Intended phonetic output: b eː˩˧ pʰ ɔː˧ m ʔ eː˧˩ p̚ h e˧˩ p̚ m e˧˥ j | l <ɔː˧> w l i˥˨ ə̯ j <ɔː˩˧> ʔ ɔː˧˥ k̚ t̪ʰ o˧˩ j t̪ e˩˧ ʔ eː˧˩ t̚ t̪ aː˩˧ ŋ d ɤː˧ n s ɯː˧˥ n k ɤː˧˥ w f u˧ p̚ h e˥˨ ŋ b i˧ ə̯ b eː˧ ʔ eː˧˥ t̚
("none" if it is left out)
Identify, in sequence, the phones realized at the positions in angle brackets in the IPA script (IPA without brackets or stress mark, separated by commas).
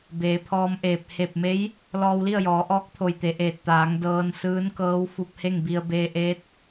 ɔː˧, ɔː˩˧